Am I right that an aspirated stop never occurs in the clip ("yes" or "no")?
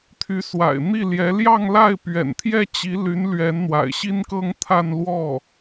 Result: no